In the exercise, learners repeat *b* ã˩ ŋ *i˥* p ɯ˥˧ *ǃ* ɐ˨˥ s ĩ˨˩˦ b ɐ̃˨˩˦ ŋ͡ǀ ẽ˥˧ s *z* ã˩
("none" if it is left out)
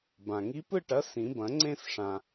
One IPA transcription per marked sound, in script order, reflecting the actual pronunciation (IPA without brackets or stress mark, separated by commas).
b, i˨˥, ʈ, ʂ